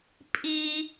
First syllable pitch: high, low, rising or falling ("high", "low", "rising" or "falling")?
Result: high